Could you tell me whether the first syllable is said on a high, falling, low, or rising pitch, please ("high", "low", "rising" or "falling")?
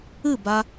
falling